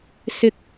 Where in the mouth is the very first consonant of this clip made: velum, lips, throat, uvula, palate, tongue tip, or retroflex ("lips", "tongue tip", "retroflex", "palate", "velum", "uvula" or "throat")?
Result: tongue tip